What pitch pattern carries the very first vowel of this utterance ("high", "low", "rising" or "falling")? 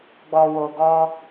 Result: low